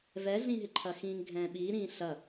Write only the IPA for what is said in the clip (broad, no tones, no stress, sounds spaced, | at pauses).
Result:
v ɛ ɮ ĩ ɦ ɪ ǃʰ ɐ x ĩː ŋ ɡʱ ɛ̃ː ɓ iː ɾ ĩː ɬ ɐ